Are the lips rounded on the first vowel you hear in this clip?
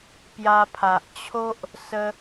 no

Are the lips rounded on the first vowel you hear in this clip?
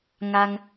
no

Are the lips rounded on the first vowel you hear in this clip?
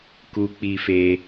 yes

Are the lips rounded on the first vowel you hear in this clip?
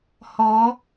yes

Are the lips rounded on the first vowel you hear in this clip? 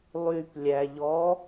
yes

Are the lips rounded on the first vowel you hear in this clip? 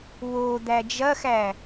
yes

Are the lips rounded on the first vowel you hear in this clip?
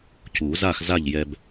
yes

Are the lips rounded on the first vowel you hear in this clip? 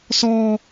yes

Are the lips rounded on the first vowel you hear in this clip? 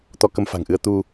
yes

